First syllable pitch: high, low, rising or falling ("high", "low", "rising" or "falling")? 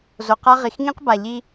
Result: low